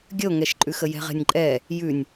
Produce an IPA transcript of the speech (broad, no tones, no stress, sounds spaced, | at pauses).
ɡʲ ə o̯ ŋ ɛ ʃ ǃʼ ʉ x ə j ɛ̤ ʁ ɛ̤ nʲ ǃʼ ɛ | j ʉ nʲ